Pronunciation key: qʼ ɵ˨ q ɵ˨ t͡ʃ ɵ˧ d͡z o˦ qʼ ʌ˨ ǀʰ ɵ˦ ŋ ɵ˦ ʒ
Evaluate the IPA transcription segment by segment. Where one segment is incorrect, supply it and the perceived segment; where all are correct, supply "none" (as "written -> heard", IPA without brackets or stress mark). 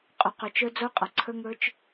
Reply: ʒ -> t͡ʃ